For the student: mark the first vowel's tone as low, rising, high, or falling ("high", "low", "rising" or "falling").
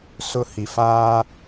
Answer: high